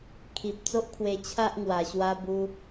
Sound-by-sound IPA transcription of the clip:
kʰ i˨ p̚ t͡s o˦ ʔ kʰ w e˧ t͡ɕʰ a˦ ʔ ŋ w a˨˩ ɕ w a˧ b u˧

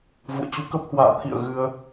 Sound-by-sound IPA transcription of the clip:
v ṵ˧˨ ə̯ t͡ɕ u˧ k ə˦˥ p̚ h w a̰ː˧˨ t̪ʰ ḭ˧˨ ə̯ ɣ ɨ˧ ə̯

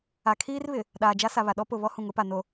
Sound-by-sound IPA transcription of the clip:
a˨ kʰ iː˦ r β ɪ˨ | ɗ aː˨ d͡ʒ a˦ s a˨ β a˨ ɗ ɔ˦ p ʊ˨ β ɔ˦ h ũ˨ ŋ ʊ˦ p a˨ n o˨

